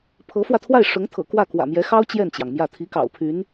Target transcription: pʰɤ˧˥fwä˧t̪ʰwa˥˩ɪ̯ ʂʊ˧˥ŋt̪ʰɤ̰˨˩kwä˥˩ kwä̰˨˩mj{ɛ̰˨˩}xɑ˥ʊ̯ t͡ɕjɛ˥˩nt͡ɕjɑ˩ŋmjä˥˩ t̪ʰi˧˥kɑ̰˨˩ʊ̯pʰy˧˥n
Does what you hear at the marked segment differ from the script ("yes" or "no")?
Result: yes